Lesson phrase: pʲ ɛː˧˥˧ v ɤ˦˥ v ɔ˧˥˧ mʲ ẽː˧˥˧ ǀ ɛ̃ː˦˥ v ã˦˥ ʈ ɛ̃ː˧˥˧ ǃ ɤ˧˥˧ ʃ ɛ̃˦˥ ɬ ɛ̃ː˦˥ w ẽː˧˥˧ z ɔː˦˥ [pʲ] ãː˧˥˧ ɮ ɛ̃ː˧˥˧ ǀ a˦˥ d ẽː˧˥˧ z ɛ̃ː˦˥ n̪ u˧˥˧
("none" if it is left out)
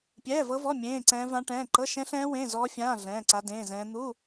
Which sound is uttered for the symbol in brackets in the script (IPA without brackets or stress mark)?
fʲ